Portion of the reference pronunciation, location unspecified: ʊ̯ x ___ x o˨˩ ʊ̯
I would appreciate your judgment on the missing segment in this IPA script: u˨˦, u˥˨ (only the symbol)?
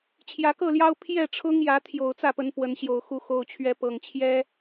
u˨˦